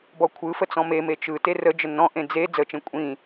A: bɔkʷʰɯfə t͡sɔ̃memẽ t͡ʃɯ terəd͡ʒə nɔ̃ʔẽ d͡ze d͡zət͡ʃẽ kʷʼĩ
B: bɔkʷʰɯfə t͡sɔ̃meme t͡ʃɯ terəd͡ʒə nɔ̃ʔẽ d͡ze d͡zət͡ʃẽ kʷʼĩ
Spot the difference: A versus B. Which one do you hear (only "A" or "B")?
B